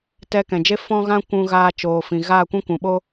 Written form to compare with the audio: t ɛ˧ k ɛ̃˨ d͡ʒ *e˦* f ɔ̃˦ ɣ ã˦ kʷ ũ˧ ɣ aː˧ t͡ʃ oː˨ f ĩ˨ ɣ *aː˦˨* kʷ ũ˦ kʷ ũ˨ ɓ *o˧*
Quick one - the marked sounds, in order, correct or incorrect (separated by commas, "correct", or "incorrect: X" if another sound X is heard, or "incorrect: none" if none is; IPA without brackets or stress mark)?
correct, correct, incorrect: o˦